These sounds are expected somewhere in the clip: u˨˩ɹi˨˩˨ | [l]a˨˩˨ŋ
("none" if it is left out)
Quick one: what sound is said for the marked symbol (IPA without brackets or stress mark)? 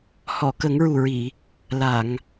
l